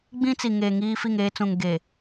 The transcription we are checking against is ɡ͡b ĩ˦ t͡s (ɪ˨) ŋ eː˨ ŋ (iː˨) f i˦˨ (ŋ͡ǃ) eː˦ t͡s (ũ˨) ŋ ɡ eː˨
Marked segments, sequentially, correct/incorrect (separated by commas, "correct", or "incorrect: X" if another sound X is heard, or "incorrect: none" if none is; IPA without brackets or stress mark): incorrect: i˨, incorrect: iː˦, incorrect: ŋ, correct